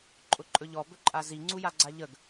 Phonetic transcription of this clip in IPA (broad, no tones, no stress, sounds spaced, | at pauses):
ǃʼ ʊ ǃʼ ɵ ʎ ɔ b ɵ ǃʼ a z i ŋ͡ǀ u j a ɡ͡ǀ a ʎ ə ɡ